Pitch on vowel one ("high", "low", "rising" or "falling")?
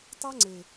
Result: high